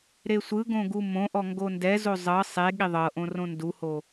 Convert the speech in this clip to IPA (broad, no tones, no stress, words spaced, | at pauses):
ɾesʷɯɡõ ɡumõʔɔ ŋɡondɛzo zˤɤ sˤe ɠiðˤɤʔõ rõnduho